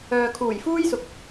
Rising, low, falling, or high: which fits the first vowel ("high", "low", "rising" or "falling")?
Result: low